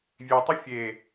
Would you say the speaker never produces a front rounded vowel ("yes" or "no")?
no